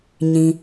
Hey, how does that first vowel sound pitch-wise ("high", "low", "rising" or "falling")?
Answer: low